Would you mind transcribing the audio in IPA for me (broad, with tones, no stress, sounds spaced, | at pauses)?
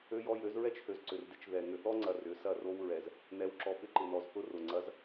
ø˦ j ɔ˦ j ø˨˦ z ɹ ɛ˦ t͡ʃ h ø˨ z ǀ ʏ˨ r d ɪ˦ t͡ʃ ð ɛ˨ ŋ ʏ˨ θ ɔ˦ ŋ͡ǀ ɐ˨ r ʏ˨˦ s ɐ˦˨ r o˦ w ɹ ɛ˨ z | n ɛ˨˦ w ǁ ɔ˨ p ɪ˦ ǃ ɪ˨ n ɔ˨ z θ ʊ˦ r ʊ˨ ŋ͡ǀ ɐ˨˦ z